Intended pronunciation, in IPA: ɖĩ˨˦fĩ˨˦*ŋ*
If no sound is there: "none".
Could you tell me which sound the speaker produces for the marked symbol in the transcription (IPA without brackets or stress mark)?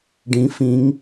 ŋ